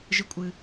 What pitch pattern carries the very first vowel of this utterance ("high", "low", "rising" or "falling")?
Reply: high